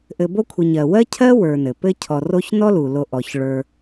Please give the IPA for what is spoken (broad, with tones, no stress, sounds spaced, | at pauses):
ʔ ɘ˨ b o˦ kʷʰ ɘ˨ ɲ ɜ˩ w ɜ˥ cʰ ɜ˥ w ə˞˨ n ɘ˩ p ɘ˦ cʰ ɔ˨ r o˦ ç n ɔ˥ l u˩ l o˨ ʔ ɔ˩ ç ɭ ə˞˨